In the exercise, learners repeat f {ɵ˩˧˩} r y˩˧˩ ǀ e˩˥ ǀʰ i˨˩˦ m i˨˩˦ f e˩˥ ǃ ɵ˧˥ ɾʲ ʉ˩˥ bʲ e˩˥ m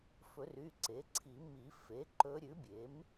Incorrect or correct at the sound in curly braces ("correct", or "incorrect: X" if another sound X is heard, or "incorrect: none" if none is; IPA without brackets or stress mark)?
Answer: incorrect: ɵ˨˩˦